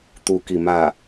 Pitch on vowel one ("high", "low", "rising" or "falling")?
low